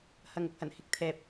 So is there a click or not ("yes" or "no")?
no